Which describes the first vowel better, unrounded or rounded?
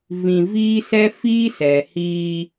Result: unrounded